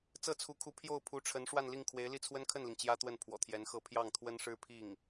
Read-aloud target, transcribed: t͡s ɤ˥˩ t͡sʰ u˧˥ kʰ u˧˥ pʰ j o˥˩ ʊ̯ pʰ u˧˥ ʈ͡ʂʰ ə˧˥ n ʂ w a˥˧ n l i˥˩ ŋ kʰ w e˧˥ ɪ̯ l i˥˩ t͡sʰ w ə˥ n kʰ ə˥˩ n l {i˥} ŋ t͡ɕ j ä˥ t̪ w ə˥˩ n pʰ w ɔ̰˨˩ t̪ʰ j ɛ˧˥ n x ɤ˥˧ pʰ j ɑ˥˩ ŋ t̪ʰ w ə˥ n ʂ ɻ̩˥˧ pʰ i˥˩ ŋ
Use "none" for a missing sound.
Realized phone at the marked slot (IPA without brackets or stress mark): i˩